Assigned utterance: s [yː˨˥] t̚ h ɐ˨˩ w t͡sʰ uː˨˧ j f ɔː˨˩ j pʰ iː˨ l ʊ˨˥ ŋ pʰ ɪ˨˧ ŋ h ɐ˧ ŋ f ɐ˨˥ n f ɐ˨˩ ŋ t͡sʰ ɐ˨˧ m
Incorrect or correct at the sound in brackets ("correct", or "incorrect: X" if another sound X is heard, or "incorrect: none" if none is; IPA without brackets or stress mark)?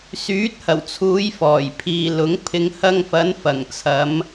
correct